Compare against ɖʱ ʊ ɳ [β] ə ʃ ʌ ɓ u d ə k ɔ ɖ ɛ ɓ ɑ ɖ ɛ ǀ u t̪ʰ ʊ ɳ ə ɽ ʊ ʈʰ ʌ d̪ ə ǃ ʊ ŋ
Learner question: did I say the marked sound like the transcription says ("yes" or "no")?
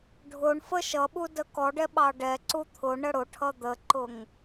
no